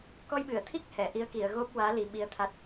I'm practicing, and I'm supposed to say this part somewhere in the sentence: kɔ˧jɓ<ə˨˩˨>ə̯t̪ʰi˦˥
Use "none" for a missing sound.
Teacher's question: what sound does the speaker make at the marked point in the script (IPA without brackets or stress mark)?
ɨ˨˩˨